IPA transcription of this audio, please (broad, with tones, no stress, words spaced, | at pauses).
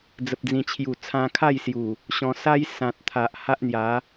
d͡zə˨p̚d͡zĩ˨˩t͡ɕʰju˨˩ t͡sʰã˧kʰa˥˧jsju˨˩ | ɕɔ̃˧sa˦j sã˨t̚t̪ʰa˨ʔ ha˦ʔn̪ja˨˦